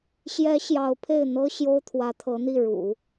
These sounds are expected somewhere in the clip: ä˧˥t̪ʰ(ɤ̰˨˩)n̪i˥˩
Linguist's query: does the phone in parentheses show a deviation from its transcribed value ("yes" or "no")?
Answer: yes